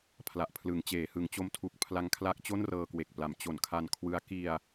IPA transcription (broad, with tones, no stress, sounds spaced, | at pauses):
pʰ l a˨˩ ʔ pʰ l ɯ˩˦ ŋ t͡ɕ eː˩˦ h ɯ˩˦ ŋ t͡ɕ o˦˥ m tʰ u˨˩ k̚ pʰ l a˧ ŋ kʰ l a˦˥ k̚ t͡ɕ o˥˩ n r ɤː˧ k w e˨˩ k̚ p l a˩˦ m t͡ɕ o˩˦ n kʰ a˧ n kʰ w ɯ˦˥ a̯ k i˧ a̯